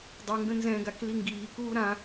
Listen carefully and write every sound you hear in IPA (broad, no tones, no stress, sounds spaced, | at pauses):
dˤ u ŋ ɡ ə̃ n z ɛ̃ ɡ a k l i ŋ ɡ iː k uː ɾ ã